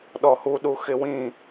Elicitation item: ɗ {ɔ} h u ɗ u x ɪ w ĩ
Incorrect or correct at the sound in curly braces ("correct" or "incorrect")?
correct